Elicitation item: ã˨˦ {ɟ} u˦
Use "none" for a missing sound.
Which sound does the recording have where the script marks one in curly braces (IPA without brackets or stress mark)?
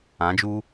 d͡ʒ